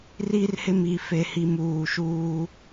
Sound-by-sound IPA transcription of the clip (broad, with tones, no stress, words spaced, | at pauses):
ri˦rhɪ˦mi˨ fe˨hi˨m uː˨ʃuː˦